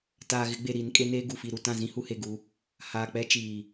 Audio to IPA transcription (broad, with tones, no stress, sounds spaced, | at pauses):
t aː˨ ɣ ɪ˨˦ ɡ͡b e˨ ɾ i˨˦ n kʼ e˦ n eː˦ ɡ u˨ f i˨ ɾ u˨ t ã˦˨ z ĩ˦ h u˦ h e˨ ɡ u˨˦ | h aː˨ k͡p ɛ˦ t͡ʃ iː˨